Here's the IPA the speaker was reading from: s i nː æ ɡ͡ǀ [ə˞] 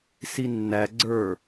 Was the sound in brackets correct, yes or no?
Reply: yes